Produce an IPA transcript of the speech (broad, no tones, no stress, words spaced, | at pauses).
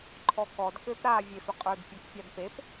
ǃʰɔkɔd køpɾa vʲefʏqʼə˞d pʲɛkpʲadpep